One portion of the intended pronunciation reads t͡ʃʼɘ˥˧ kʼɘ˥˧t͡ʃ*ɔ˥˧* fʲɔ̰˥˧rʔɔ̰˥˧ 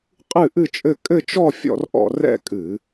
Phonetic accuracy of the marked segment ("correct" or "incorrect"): correct